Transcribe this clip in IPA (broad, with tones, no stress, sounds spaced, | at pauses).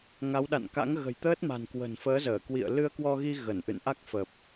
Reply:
ŋ a˨˦ w ɗ a̰˧˨ n k a̰˧˥ ŋ ɣ ə̤˨˩ j t̪ əː˦˥ t̚ m a̤˨˩ n k w ə̤˨˩ n f əː˨˦ z əː˧˩ k w ḭ˧˨ ə̯ l ɨ˧ ə̯ k w ɔ˧ ɣ i˧ ɣ ə˧˩ n ʔ ɨ̰˧˨ n ʔ a˦˥ k̚ f ə˨˩ p̚